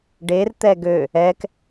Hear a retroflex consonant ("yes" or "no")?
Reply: yes